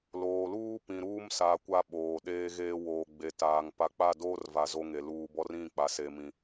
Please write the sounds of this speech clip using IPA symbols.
loː˨luː˦pĩ˨ ɾuː˦msa˨ kʷa˦ ɓoː˨ɗeː˦ɣeː˦ woː˨ɡ͡be˨taː˨ŋ pa˨˦k͡pa˦˨ doː˦rva˨ zo˦ŋe˨ luː˨ bɔ˦rĩ˦˨k͡pa˨ se˨mĩ˨

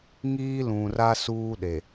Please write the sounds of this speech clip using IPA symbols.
ŋiː˦lũ˨ra˦ suː˦ɗe˨

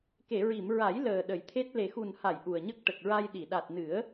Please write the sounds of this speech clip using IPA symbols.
ke˨˩˨ɹi˨˩˨mɹa˨˩˦j ləː˨˩ ɗə˨˩˦jt̪ʰe˦˥t̚ le˨˩xu˨˩nha˨˩˨j ʔu˨˩ə̯ɲə˦˥k̚ ʈə˨˩k̚ɹa˧jɗi˨˩˨ ɗa˨˩t̚nɨ˨˩˦ə̯

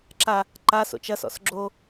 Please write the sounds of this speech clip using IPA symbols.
ǁa | ǃaso̰t͡ʃ ɐsɔ̰s ɡ͡ǁo

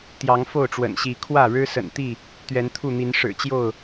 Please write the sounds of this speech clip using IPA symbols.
t̪jɑ˨˦ŋfo˥˨ʊ̯ʈ͡ʂwə̰˨˩nɕi˨˦ kʰwä˥˨ɻɻ̩˦sə̰˨˩nt̪i˥˨ | t̪ɥɛ˨˦nt̪ʰu˥˨n̪i˨˦n ʂɻ̩˨˩t͡ɕjo˥˨ʊ̯

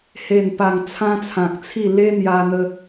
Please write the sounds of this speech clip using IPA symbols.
he˨˩npa˨˩ŋ t͡sʰã˦t͡sʰã˨k̚t͡sʰi˥˧ le˦n̪ja˧n̪ə˧

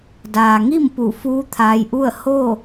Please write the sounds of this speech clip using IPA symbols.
daː˩ŋi˥˨m pu˧˩fuː˧˥t̪ʰaː˧jʔu˥˨ə̯ ho˥˨

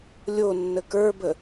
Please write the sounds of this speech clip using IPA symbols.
lʲonːə kə˞bə

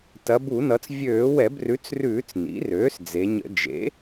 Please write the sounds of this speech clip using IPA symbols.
tɐ˩˧bu˧˩˧nʌ˩˧t͡s vʲøː˧˩˧wɛ˧˩˧brʉ˩˥t͡srʉː˧˩˧t͡s nḭ˩˥røː˩˥sd͡ze˩˧ɲə̰˧˩˧ d͡ʒḛ˩˥

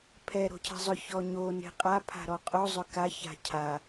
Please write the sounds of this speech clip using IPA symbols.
pʰɛ ɾo̤cʰɛ̤zˤʏ çɔɲo ne̤qʼa pʰa̤ɾɔqʼo zˤʏka ça̤cʰa

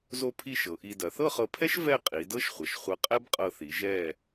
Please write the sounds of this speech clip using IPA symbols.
zo˥˧pʰi˥˧ʃɤ˩˧ʔi˧ dɐ˩˧θɤ˥˧χɤ˧pʰɛ˥ʃ vɛ˥˧qʼi˩˧dɤ˥ʃ χʷɐ˩˧ʃ χʷɐ˧qʼɛ˥bqʼɤ˧θi˩˧ ʒɛ˧˩

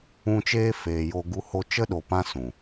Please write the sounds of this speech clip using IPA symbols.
ũ˧ t͡ʃeː˦feː˨jo˧ ɡu˧ho˧t͡ʃə˦ɗo˨ pã˦sũ˨

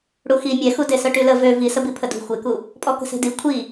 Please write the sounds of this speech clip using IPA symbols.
ɽuxi mʲɛxude sœʈylə vø visəbi pʰədṳ xʷeku | pʼɔkə̤se̤di kʷʰi

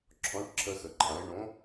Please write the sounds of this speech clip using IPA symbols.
ǁʰɔ̃˨˥ʈǁʰə˧xə˩ ǃʰã˩˧ɪ̯ɳõ˨˥

